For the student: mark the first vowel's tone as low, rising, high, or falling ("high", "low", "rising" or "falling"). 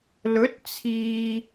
rising